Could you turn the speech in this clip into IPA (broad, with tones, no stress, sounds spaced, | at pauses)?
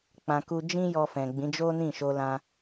k͡p ã˨ k u˧ d͡ʒ ĩ˦ j ɔ˧ f ɛ̃˨ ɡ͡b ĩ˨˦ d͡ʒ o˦ n ĩ˦˨ ʃ o˧ l ã˧